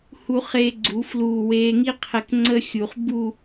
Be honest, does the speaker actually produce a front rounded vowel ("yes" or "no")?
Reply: no